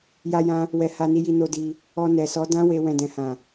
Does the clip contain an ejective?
no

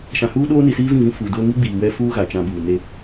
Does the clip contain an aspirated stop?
no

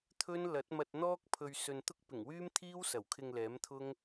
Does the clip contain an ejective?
no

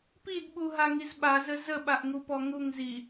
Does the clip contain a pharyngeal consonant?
no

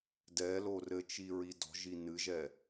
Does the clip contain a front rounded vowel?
no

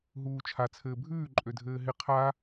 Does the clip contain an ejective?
yes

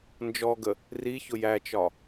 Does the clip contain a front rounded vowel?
no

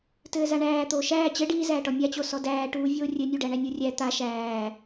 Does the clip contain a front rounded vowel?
no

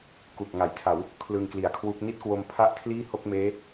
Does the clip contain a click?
no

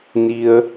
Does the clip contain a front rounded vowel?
no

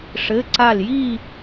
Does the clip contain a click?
yes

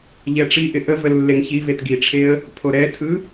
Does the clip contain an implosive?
no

